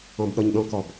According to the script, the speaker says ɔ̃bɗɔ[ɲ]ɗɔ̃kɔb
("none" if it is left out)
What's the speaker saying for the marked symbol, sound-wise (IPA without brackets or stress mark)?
ɲ